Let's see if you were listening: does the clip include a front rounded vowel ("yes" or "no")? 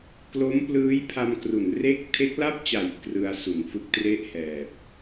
no